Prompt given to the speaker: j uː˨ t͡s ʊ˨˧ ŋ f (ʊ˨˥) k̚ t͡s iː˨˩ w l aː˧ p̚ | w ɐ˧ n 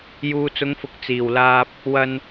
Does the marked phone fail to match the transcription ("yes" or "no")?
no